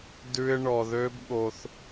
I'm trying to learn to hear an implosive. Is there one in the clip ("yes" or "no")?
yes